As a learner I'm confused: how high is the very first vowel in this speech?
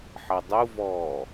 low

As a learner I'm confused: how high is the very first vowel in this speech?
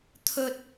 mid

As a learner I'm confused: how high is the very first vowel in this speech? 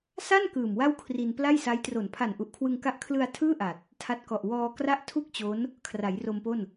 low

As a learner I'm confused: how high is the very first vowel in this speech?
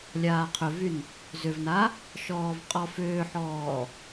low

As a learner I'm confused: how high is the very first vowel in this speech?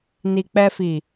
high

